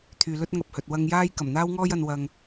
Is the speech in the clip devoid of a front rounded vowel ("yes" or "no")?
no